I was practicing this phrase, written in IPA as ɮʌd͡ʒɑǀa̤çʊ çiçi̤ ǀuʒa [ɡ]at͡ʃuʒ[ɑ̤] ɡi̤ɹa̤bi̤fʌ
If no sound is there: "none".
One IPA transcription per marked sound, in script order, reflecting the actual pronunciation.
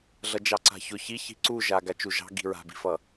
ɡ, ɑ̤

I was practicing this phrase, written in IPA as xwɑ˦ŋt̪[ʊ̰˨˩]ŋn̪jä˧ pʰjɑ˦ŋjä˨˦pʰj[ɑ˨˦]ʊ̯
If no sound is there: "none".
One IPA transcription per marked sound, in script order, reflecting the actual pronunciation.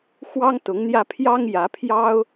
ʊ˨˦, ɑ˦

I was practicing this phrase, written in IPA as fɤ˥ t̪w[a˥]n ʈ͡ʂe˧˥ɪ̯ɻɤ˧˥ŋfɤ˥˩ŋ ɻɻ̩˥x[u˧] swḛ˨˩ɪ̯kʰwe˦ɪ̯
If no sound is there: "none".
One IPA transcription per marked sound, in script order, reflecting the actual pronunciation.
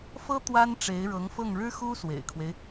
a˥, u˥

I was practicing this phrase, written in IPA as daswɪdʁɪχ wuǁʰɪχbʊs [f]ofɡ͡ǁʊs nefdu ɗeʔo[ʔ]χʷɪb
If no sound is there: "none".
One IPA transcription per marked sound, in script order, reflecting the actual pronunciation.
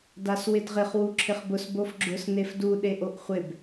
b, ʔ

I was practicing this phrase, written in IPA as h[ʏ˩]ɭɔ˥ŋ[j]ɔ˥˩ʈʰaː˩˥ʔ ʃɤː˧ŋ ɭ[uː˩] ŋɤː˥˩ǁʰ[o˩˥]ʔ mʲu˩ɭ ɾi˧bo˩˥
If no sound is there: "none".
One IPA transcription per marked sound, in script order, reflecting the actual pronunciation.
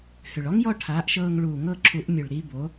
ʏ˩, j, uː˩, u˩˥

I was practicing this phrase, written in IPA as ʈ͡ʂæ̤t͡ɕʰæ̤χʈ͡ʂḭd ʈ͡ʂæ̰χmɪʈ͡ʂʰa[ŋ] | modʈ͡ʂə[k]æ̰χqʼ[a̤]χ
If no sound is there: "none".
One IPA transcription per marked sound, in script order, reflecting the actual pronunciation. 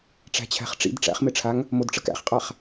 ŋ, k, a

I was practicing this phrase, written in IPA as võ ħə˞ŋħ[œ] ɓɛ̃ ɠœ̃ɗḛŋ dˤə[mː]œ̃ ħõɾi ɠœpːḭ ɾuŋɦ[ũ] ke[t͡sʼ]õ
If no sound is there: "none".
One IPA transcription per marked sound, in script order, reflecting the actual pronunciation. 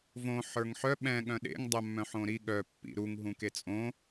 œ, mː, ũ, t͡sʼ

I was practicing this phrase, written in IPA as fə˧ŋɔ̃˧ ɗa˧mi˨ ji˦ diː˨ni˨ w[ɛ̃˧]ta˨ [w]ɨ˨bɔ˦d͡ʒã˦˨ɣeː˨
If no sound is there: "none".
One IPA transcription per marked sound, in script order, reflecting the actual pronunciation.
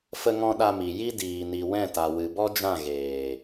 ɛ̃˦˨, w

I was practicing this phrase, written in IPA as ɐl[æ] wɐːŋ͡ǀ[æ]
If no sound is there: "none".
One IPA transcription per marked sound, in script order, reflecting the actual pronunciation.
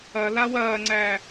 a, æ

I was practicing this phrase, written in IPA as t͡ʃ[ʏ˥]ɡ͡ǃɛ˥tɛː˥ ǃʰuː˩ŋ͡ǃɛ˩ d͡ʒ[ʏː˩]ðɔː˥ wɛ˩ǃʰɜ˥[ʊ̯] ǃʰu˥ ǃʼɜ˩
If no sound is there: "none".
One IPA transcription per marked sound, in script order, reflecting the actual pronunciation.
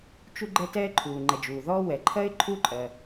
u˥, uː˩, ɪ̯

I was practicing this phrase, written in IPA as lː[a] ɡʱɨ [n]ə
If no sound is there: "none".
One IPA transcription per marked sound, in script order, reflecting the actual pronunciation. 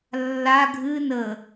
a, n

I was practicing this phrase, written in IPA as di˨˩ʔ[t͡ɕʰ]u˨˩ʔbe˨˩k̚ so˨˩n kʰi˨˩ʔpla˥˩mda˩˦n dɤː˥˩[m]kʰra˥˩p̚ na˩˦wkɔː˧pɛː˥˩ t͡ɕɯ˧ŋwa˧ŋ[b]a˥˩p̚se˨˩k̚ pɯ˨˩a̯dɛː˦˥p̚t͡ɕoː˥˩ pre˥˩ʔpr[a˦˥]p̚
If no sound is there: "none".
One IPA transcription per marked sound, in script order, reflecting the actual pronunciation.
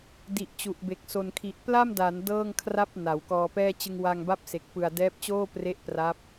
t͡ɕ, ŋ, b, a˦˥

